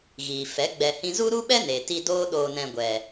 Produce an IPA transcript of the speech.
ɣ iː˨ f ɛ˨˦ ɡ͡b ɛ˨ h ĩ˧ z u˦ ɾ u˦ ɓ ɛ˦ n e˨ t i˧ d oː˦ ɗ oː˧ n ɛ̃˧ ɡʷ ɛ˨

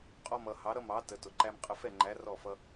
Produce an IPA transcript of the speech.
qʼ ɔ˧ m ʌ˨ h ɑ˨˦ ɾ ʌ˦ m ɑ˨˦ t ə˨˦ t ʊ˨ ǃ æ˦ m qʼ ə˧ f ɛ˦˨ ŋ͡ǃ æ˨˦ r ɔ˦˨ f ʌ˦

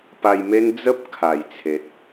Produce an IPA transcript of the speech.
p a˧ j m e˦ n d͡z ə˦ p̚ kʰ a˨˩ j t͡sʰ e˨ t̚

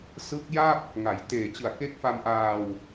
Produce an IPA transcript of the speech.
s ɯ˦˥ k̚ j a˥˩ p̚ | ŋ a˩˦ j t eː˨˩ t͡ɕ ɯ˨˩ a̯ k e˦˥ k̚ f a˧ m ʔ aː˧ w

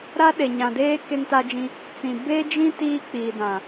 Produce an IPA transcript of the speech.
ɾ a˦ ɗ e˨ ɲ ã˨ d eː˦ k e˦ ŋ t a˦ d͡ʒ ĩ˦ | t͡s ĩ˨ b e˦ d͡ʒ ĩ˦ t iː˦ k͡p iː˨ d ã˨

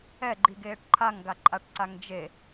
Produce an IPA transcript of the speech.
ɛ ɡ͡ǃ i ɡ eː ʈ ǃʰ a ŋ ɡ a ǃʼ a ʈ ǀ a ŋ d͡ʒ e

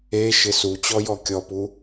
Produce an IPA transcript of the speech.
e ʃ ɪ s u t͡ɕ ɔ j ɔ kʲ ɔ p u

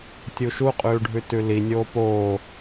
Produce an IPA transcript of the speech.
tʲ u ʃ u qʼ ʉː ɖʱ ʉ t ʉ l i nʲ oː p oː

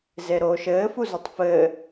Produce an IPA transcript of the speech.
z e ɾ oː ʃ ɘː f u z o tˤ f ɘː

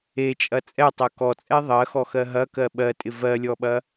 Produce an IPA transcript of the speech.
e t͡ʃʼ ɐ t͡sʼ ɛ tˤ ɜ k ɔ t͡sʼ ɛ ðˤ ɜ x ɔ x ɜ ɦ ɐ k ɜ ɓ ɜ tʼ ɪ v ɜ lʲ ɔ ɓ ɐ

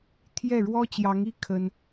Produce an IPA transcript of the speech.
t̪ʰ j ɛ˥˩ ɻ w ɔ˥ t͡ɕ j ɑ˧˥ ŋ i˥˩ kʰ ə˥ n

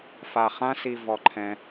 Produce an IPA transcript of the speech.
f a˨ χ ã˦ s i˨ v ɔ˨ ǃʰ ɛ̃˧

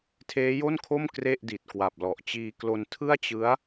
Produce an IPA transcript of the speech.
tʰ eː˦˥ j o˥˩ n kʰ o˥˩ m k r e˥˩ ʔ d i˨˩ t̚ k w a˨˩ p̚ l ɔ˨˩ ʔ t͡ɕ iː˧ k l o˧ n tʰ ɯ˥˩ a̯ t͡ɕ ɯ˦˥ a̯

